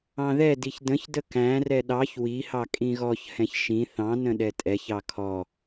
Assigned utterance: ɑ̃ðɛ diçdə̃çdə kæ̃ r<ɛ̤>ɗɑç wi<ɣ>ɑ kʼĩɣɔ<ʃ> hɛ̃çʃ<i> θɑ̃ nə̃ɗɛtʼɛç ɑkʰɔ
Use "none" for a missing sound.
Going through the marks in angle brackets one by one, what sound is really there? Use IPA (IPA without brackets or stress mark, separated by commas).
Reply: ɛ, h, ç, ĩ